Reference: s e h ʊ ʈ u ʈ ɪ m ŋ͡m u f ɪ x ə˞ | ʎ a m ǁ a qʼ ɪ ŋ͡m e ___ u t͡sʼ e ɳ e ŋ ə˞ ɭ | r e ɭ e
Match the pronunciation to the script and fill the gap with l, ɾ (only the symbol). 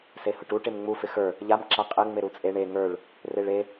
ɾ